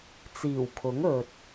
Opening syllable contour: low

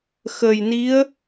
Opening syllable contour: low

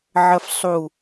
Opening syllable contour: low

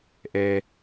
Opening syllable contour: low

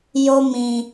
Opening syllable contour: high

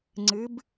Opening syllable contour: rising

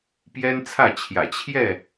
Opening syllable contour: high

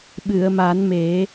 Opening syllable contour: low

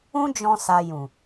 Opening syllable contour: high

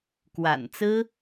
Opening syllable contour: low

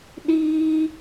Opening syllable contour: high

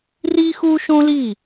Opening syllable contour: high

